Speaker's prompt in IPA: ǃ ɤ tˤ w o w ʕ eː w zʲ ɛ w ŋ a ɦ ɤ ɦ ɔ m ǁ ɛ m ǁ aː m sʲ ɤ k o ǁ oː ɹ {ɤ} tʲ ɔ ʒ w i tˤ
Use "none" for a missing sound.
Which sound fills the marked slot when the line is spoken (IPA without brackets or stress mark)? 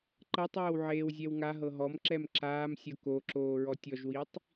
ɔ